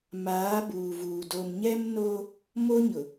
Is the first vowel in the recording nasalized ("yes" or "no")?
no